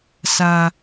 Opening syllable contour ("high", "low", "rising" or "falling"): high